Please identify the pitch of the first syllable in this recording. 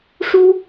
high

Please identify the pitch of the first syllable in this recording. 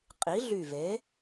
rising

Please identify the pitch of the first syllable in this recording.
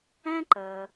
high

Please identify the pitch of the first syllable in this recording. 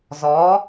rising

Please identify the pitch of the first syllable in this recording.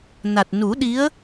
low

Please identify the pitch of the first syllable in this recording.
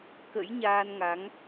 rising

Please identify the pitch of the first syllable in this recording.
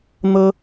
high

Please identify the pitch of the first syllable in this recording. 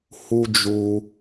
high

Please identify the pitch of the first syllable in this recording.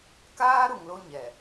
high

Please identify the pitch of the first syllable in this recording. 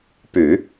low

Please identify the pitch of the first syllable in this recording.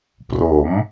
rising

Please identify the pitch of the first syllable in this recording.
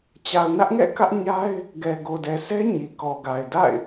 low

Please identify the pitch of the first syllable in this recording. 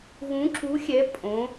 rising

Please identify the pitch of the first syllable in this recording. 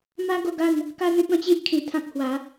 high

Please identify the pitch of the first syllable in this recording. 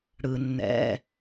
low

